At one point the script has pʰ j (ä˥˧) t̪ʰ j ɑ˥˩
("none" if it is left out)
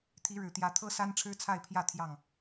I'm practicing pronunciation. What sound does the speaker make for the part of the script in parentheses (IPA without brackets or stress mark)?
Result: ä˥˧